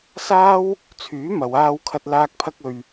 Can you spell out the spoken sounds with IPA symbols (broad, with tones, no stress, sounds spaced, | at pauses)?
s aː˥ w | t͡sʰ yː˨˥ m ɐ˨ w aː˧ w kʰ ɐ˧ t̚ l aː˧ k̚ pʰ ɐ˧ k̚ ɵ˨ ɥ